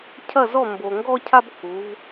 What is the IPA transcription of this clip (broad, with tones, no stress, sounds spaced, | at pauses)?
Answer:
cʰ ɐ˥˨ z ɔ˥˨ m b o˨ ŋ ɡ ɔ˦ cʰ a˦ b k u˨˦ v